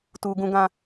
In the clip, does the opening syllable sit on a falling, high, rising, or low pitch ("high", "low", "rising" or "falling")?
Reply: low